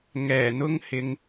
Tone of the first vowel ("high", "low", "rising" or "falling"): low